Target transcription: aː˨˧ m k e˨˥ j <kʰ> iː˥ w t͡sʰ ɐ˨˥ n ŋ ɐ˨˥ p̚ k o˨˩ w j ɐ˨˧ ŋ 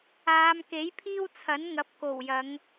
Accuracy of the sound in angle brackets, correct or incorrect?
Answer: incorrect